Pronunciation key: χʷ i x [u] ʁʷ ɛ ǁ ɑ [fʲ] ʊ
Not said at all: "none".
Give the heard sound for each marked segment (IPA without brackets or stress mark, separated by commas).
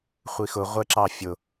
ʊ, fʲ